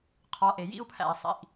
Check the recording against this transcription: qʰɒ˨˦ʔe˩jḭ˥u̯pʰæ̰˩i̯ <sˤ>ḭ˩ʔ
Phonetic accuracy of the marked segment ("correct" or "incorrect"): correct